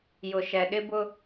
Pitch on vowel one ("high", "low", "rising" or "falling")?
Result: low